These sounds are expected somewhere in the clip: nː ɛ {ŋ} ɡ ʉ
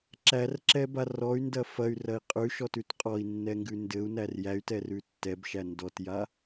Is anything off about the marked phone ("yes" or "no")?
no